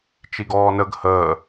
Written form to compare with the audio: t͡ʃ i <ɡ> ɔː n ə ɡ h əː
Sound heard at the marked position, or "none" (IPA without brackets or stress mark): ɡ